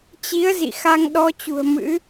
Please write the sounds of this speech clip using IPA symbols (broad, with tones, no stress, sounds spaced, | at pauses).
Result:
t͡ɕ i˨˦ ə̯ z ḭ˧˨ x a˧ ŋ ɗ ɔ˧ t͡ɕ ṳ˨˩ ə̯ m ɨ̰˧˥